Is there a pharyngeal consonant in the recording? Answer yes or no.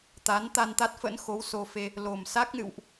no